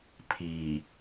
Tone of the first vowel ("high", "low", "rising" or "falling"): low